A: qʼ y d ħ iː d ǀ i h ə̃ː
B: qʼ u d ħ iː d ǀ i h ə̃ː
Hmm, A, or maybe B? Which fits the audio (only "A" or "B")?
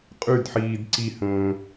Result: A